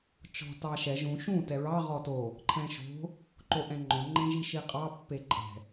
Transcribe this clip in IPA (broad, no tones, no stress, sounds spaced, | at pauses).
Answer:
t͡ʃ ɔ̤ t ɑ ʃ ɛ ʒ ũ ʃ ũ t ɛ ɹ ɑ ʁ ɔ t o | ǃʰ ɛ̃ ʃ o̤ | ǃ o ʔ ɛ̃ ŋ͡ǃ õ ŋ͡ǃ ẽ ʒ i ʃ i qʼ ɑ pː e ǃʼ ɛ̤